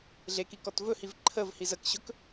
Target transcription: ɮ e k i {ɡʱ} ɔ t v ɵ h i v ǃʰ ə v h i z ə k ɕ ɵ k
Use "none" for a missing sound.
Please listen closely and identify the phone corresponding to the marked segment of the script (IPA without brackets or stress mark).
k